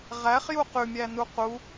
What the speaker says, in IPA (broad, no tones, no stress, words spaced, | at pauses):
ʁæχju qʉmʲænu qu